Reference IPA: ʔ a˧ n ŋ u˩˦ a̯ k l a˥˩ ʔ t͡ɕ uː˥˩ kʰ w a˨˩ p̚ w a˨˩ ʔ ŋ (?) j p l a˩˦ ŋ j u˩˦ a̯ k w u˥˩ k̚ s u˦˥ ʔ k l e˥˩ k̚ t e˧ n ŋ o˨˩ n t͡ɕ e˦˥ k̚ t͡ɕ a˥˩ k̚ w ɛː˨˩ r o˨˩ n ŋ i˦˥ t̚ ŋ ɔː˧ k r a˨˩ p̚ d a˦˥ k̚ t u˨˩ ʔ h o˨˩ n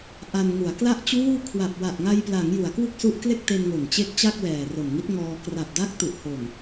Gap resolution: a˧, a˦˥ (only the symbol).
a˧